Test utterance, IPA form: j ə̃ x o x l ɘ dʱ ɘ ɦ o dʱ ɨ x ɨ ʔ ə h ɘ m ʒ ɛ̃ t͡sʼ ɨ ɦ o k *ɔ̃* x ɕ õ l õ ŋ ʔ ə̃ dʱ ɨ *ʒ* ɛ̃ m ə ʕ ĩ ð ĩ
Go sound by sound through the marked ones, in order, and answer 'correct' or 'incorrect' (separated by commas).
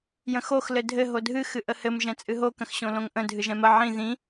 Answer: incorrect, correct